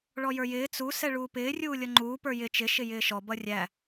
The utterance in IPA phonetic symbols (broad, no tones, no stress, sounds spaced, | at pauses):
ɭ ɔ j ə˞ j ɪː t͡s u s ɛ ɭ uː p ɪː rʲ uː lʲ ʌ ŋ͡ǃ uː p ə˞ j ɪ t͡ʃ ɪ ʃ ɪ j ɪː ʃ ɔ b ʌ rʲ æ